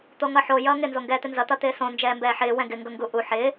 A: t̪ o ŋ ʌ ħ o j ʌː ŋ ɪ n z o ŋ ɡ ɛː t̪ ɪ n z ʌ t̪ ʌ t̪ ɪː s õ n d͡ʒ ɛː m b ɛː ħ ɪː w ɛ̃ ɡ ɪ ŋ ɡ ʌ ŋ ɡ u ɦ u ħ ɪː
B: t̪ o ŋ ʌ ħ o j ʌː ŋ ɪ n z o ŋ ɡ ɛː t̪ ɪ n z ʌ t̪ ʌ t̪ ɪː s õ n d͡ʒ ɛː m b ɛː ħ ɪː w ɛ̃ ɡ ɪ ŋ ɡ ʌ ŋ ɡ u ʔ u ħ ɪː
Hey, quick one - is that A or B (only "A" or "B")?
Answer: B